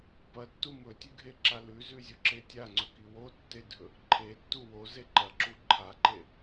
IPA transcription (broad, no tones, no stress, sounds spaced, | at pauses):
p ɐ tː u m ɵ tʲ ʉ ɡʱ e ǁ a l ʉ z ʉ zʲ o ǁ e tʲ a ŋ͡ǀ ɵ k i w o tː e dʱ ɵ | ǃʰ e tː u w o z e ǃ ɐ ǁ u ǃʰ a ǃ e